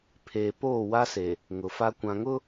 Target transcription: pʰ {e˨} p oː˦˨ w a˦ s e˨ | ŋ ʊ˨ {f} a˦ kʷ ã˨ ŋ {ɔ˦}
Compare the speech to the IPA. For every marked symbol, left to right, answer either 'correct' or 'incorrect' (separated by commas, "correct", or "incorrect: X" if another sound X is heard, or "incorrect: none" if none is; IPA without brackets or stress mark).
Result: incorrect: eː˨, correct, incorrect: ʊ˦